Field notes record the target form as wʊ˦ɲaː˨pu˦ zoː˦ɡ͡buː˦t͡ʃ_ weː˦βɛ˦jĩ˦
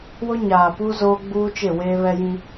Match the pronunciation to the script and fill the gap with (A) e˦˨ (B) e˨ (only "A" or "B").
A